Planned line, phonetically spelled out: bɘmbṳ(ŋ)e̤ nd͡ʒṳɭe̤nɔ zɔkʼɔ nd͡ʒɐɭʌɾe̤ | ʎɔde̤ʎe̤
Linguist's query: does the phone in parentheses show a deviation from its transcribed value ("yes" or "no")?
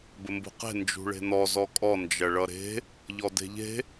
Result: yes